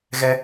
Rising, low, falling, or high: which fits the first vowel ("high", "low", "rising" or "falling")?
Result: high